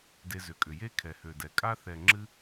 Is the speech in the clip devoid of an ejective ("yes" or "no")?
no